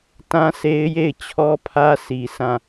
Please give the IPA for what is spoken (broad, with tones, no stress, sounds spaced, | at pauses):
t ã˦ sʰ e˦ ɪ̯ j e˦˨ ɪ̯ t͡ɕʰ ɔ˦ pʰ ä˦ sʰ i˨ s ã˦˨